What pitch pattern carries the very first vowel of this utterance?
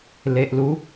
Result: low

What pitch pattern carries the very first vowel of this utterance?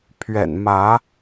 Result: low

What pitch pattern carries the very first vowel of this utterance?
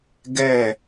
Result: falling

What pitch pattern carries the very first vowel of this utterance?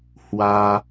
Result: high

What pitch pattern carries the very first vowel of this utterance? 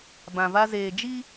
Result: low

